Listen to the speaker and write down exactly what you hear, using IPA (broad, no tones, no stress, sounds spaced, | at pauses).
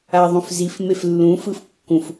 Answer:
a ðˤ ũ f z i f m e f lː ũ f ɯ f kː ũ f